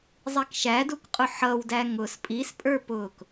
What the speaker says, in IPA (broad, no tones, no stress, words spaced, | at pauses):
zˤikʃæduk qʼʊħʌwdæ ŋʊs pʼispʼə˞ pʊk